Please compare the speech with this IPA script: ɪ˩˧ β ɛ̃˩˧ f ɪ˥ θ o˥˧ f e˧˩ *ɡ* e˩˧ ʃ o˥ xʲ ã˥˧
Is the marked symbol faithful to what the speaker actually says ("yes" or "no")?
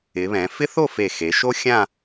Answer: no